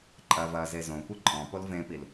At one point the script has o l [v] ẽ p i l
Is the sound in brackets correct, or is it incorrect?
correct